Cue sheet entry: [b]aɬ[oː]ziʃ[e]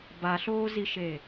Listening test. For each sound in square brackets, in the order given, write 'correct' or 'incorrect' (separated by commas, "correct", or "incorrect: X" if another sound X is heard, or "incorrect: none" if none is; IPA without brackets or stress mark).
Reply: correct, correct, correct